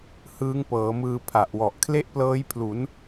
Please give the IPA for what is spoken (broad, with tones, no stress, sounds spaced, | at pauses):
h ɯː˦˥ ŋ p ɤː˩˦ m ɯː˧ pʰ a˨˩ ʔ w ɔ˨˩ ʔ kʰ l e˥˩ ʔ p l ɤː˦˥ j pʰ l u˩˦ n